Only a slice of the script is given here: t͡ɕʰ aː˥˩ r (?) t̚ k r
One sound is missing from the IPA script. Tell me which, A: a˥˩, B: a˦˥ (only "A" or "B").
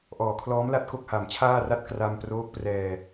A